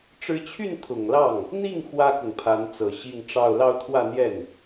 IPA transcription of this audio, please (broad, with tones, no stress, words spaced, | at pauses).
ʈ͡ʂɻ̩˧˥t͡ɕʰy˥˩n t̪ʰʊ˨˩ŋlɑ˥˩ŋ | n̪i˥˩ŋ xwä˥kʊ˨ŋpʰa˧˥n t͡sɤ˨˩ɕi˥˧ŋʈ͡ʂɑ˥˧ʊ̯ lɑ˥˧ʊ̯t̪ʰwä˥˧n̪jɛ˥˩n